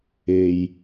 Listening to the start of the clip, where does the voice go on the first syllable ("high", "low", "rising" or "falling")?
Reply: low